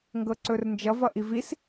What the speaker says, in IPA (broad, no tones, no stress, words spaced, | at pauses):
ŋɡɤǀɵrnd͡ʒʌ vʌʔivis